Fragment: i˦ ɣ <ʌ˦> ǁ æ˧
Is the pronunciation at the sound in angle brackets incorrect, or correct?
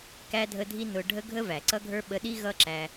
correct